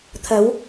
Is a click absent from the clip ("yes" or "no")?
yes